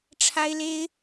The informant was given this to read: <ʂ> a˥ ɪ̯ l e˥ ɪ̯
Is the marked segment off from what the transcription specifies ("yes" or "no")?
yes